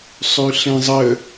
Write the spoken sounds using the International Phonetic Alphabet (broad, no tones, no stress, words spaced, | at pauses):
sˤʉɬẽzˤə